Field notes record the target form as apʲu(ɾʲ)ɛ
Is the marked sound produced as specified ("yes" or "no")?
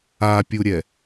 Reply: yes